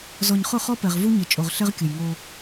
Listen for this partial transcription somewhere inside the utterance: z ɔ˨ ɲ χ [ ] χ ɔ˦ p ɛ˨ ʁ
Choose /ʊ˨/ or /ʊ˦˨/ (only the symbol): ʊ˦˨